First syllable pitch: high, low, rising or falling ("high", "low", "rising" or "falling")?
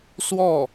falling